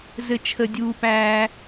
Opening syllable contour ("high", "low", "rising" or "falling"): high